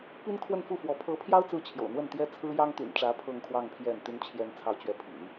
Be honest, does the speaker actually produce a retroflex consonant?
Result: yes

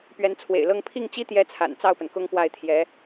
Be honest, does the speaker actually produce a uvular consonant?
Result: no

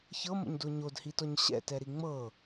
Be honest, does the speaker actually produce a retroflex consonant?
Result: no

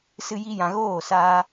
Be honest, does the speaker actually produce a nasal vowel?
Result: yes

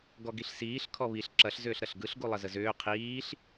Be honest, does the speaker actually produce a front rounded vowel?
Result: yes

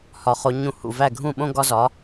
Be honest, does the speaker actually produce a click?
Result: no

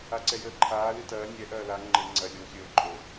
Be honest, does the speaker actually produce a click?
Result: yes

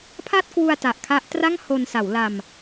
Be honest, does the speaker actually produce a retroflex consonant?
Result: no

